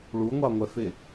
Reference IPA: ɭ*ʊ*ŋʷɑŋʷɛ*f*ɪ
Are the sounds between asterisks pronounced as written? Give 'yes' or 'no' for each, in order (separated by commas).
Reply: no, yes